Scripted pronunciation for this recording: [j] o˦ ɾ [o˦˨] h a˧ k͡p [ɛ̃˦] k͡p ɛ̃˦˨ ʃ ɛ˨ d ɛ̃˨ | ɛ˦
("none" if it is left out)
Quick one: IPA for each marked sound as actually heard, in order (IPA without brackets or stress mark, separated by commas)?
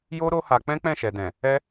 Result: j, o˦, ɛ̃˦